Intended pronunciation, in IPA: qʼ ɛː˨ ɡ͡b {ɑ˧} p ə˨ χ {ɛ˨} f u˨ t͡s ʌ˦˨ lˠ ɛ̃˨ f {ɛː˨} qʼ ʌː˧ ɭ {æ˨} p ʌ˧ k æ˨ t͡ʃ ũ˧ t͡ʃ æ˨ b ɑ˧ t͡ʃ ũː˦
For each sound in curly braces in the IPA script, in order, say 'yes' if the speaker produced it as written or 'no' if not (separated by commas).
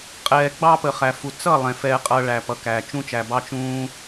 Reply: yes, no, no, no